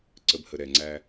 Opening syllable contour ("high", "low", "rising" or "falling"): low